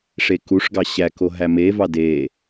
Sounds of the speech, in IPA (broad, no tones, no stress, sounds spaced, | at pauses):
ʂ e k u ʂ ɡ ɑ ɕ æ k o ɦ æ m e v ɑ d e